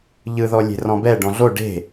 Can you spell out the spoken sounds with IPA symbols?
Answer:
ʎ ɯ ð ɔ lʲ e̤ r ɔ̃ b ɛ ɖ ɔ̃ ɮ o ɖ e̤

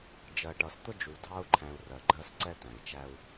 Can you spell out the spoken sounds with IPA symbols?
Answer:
d͡ʒ ɜ˨ ʈ ʌ˨ s t̪ ʊ˦ d͡ʒ u˨ dʱ ɑ˦ u̯ ǃʰ æ̃˨ u̯ r ɜ˨ ɡ͡ǃ ɜ˦ s ǀ ɛ˦ t̪ æ̃˨ i̯ t͡ʃ æ˦ u̯

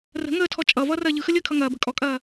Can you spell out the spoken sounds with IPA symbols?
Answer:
r ə̤ ŋ əː tʰ ɔ t͡ʃʼ ʌ v ʌː r ɐː ʎ ɯ x ə lʲ əː kʰ ʌ ŋ ɐː b ə̤ kʼ ɔ kʼ ɐː

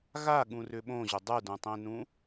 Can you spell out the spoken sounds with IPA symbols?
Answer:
ɣ a ɠ ũ r ʏ ɓ õ ʑ ʏ dˤ u d ũ tˤ ẽ n ũ

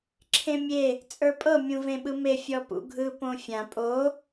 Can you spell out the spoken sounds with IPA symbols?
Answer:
ǁʰ ẽ mʲ e | t͡sʼ ə˞ pʼ ɤ mʲ ũ v ẽ ɓ ɯ m e fʲ ɔ p ṵ ɡʱ ɯ p õ fʲ ã pʼ o

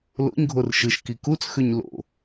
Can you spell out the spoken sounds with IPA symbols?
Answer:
l o̰ ɲ ɡʱ o r ʃ ɯ ʃ k i k u t͡s x ø ɲ l o̰

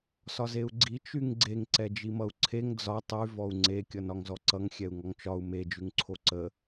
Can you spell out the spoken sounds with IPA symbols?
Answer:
s ɒ z e u̯ ɡ͡ǀ i t͡ʃ y ŋ ɡ͡ǀ e ŋ ǀ ɛ d͡ʒ i m ʌ u̯ ǀʰ e ŋ d͡z ɒ tˤ y v ɔ u̯ ŋ͡ǀ e kʲ ʌ n ɒ ŋ z ɔ ǀ ʌ ŋ xʲ ɛ u̯ ŋ ɔ ŋ t͡ʃ ɒ u̯ m e d͡ʒ ʉ ŋ ǀʰ o ǀ ə

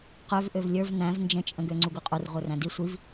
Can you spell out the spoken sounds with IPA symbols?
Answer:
q ø v ʔ ø v lʲ ə˞ v n æ̃ v n d͡ʒ ə̃ t͡ʃʼ ə̃ ɡ ø ŋ͡ǀ u ɡ u qʼ u r ʁʷ ə˞ r æ̃ d i sʷ i v

